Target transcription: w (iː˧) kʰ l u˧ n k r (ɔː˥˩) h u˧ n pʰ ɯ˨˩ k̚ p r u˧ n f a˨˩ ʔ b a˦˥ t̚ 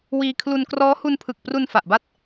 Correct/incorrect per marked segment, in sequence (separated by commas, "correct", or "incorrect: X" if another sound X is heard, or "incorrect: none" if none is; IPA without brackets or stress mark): correct, incorrect: ɔː˦˥